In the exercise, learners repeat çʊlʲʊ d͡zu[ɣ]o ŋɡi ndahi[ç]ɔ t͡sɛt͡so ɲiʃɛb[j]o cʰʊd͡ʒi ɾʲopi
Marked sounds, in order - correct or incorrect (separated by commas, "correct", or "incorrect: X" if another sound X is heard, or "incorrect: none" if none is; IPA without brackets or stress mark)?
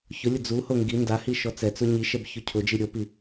incorrect: h, incorrect: ʃ, incorrect: ç